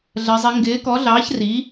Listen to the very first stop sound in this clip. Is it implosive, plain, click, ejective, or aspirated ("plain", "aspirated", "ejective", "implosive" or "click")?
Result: plain